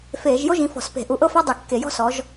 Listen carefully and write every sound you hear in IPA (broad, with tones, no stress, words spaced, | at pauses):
feː˧˩˧ʒjo˥ʒĩ˨˦ fɔ̤˧˩˧spe̤˧˩˧ ʔu˨˦ʔɤ˥fa˥ dˤɯ˧˩˧kːe˧˩˧jɔ̤˥ sɔ˨˦ʒ